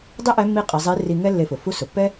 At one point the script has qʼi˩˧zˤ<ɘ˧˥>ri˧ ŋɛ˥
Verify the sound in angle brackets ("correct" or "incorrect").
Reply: incorrect